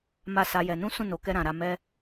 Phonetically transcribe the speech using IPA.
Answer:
m a˦ s a˦ j ɛ˧ n ũ˦ s ũ˦˨ n o˨ k ɛ˧ ɾ ã˨ ɾ a˧ m ɛ˦

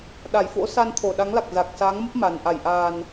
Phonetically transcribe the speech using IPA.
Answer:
ɗ a˧˩ j f o̰˧˥ s a˧ n t̪ʰ o˧˩ ɗ a˨˦ ŋ l a˨˩ k̚ z a˨˩ k̚ s aː˨˦ ŋ m ə˦˥ p̚ m a˨˩ n ʔ a˧˩ j ʔ aː˨˩ n

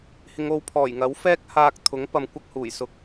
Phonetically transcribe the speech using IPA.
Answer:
h ɪ˨˧ ŋ o˨˧ w pʰ ɔː˨˩ j ŋ ɐ˨˥ w f ɛː˥ k̚ h aː˧ k̚ t̪ʰ ʊ˨˥ ŋ p ɐ˧ m kʷ ɐ˥ k̚ h uː˨˩ j s ʊ˨˥ k̚

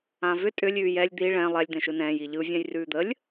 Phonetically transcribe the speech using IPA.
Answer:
ã v ʏ tʼ ʏ lʲ ʉː j ɛ lʲ d̪ i ɭ ɛ̃ lˠ ɛ lʲ d̪ ɛ̃ ʃ ɯ n ɛ̃ː j i ʎ ɯ vʲ ã j r ʉː d̪ ə lʲ

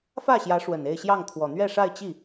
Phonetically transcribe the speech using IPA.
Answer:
f ä˥˩ ɕ j ä˧˥ ʂ w ə˨˩ n e˥˧ ɪ̯ ɕ j ɑ˥˩ ŋ t̪ʰ w ɔ˨˩ n̪ ɥ ɛ˥˧ ʂ a˥˧ ɪ̯ t͡ɕ i˥˩

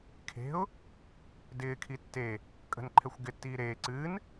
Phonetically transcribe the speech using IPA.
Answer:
kʰ e̤ ʊ̯ | d ɪː kʰ i tː e | kʼ ə̤ n ǃʰ ɛ xʷ ɡ ɪ tː iː ɾ eː ǀ ɨː n

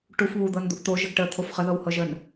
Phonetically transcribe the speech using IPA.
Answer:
ʈ u f β u d̪ ɤ n d̪ u ʔ t̪ o ʒ ə ɡ ʈ ə t̪ʰ o f χ ə ð ɤ w h ɤ ʒ ə n

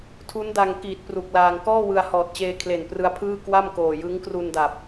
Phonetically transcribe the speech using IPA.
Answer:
tʰ u˦˥ n d a˧ ŋ k iː˨˩ t̚ p r u˨˩ k̚ l aː˧ ŋ k ɔː˥˩ w ɯ˧ a̯ h ɔː˨˩ t̚ t͡ɕ eː˧ kʰ l e˨˩ n p r ɯ˧ a̯ pʰ ɯː˥˩ k w a˥˩ m k oː˨˩ j ɯ˦˥ ŋ k r u˧ n d a˨˩ p̚

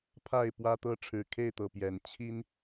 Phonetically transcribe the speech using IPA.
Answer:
pʰ a˥˨ ɪ̯ p w ä˦ t̪ ɤ˦ ʈ͡ʂʰ ɻ̩˨˩ kʰ e˥˨ ɪ̯ t̪ ɤ˨˩ p j ɛ˨˦ n t͡ɕʰ i˦ n

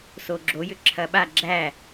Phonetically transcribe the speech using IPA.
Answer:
s o ɡ͡ǁ o j ʏ ǁʰ ɐ ɓ a ɡ͡ǁ æ

